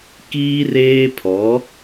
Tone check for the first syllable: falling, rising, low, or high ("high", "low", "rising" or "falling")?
high